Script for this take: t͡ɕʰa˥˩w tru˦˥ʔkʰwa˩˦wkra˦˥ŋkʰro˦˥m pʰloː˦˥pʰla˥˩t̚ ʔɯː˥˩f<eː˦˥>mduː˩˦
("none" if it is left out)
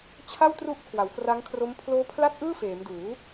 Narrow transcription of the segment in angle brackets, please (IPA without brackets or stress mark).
eː˩˦